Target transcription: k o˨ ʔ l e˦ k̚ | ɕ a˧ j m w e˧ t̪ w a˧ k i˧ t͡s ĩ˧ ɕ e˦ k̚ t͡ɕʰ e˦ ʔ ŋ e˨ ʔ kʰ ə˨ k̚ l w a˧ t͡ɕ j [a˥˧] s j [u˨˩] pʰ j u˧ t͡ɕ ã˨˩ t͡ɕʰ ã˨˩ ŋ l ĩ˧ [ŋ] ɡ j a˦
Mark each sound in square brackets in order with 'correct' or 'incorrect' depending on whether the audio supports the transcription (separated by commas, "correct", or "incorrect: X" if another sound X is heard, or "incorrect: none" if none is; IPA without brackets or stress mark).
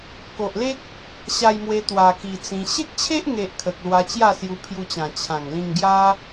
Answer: correct, incorrect: u˧, correct